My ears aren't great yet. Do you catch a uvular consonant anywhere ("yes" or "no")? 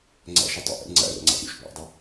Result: no